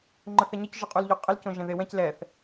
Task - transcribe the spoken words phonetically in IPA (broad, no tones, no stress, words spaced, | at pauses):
ŋ͡ǃəθɛɲəc ʒʊqʼulʎoqʼəl cõʒɛ̃ðewɛ̃c lɛθ